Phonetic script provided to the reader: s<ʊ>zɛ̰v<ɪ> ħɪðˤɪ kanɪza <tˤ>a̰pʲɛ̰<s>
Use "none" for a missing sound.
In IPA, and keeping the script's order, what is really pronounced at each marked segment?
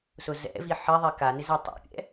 ʊ, i, tˤ, none

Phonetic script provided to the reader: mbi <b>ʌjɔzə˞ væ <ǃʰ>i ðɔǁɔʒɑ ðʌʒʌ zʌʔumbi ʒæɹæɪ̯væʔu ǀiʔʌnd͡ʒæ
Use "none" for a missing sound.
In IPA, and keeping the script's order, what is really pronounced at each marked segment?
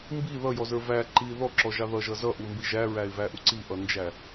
ð, ǃ

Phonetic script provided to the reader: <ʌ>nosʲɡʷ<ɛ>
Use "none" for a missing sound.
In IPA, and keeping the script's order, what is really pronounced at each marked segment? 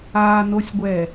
a, ɛ

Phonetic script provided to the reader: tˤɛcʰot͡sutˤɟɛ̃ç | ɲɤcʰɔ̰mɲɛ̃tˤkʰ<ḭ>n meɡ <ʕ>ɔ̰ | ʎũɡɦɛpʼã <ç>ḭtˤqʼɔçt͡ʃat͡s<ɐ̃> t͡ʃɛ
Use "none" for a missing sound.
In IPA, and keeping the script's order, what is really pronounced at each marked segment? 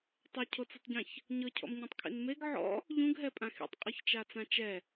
ḭ, ʕ, x, ã

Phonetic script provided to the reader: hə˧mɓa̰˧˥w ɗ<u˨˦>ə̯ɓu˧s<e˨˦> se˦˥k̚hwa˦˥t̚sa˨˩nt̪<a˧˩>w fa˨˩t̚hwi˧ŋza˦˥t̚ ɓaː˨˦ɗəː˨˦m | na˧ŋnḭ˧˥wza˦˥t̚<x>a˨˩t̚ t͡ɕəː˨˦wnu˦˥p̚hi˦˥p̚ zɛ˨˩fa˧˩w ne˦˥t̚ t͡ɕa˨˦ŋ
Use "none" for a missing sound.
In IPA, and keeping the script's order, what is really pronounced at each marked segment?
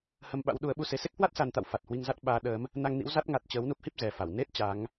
u˨˦, e˨˦, a̰˧˨, ŋ

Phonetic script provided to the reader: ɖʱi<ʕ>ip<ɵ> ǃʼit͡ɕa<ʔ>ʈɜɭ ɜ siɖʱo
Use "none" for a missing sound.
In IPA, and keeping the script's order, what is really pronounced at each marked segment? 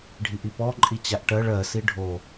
ʔ, ɔ, ʔ

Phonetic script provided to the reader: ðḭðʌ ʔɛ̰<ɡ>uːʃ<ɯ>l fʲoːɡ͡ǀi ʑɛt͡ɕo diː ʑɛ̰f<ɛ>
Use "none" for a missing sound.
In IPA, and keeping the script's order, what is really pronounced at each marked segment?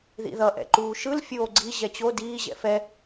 ǃ, ɯ, ɛ

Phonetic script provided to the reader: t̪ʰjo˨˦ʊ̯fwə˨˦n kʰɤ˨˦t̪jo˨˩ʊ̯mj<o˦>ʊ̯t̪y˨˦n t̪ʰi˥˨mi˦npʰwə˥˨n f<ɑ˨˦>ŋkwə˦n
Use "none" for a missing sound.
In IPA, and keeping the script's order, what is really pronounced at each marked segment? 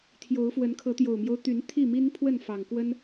o˦, ɑ˨˩

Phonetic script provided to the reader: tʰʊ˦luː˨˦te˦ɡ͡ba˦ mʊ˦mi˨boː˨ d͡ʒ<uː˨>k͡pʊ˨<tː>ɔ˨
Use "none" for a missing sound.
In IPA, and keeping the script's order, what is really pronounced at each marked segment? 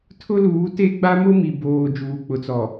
uː˨, t͡s

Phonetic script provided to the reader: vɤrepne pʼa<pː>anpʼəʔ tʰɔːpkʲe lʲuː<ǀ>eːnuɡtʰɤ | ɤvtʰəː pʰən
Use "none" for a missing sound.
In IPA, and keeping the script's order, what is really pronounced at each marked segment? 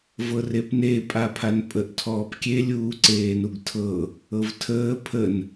pʰ, ǀ

